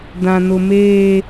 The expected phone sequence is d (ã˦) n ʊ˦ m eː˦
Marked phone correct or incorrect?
correct